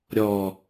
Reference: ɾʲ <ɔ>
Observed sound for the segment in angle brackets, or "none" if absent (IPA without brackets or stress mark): ɔ